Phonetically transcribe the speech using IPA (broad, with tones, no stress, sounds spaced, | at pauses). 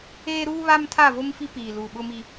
eː˦ ɾ uː˦ β a˦ m tʰ a˦˨ v o˦ m f i˦ p iː˨ l uː˨ ɓ ʊ˦ m i˦